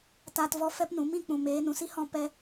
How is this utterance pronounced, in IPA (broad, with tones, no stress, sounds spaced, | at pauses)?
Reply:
t aː˧ t v ɔ˧ f ɛ˧ p n ũ˨˦ m ĩ˧ k͡p ũ˨ m eː˨˦ n ũ˨ s i˦ h ɔ̃˧ p ɛ˧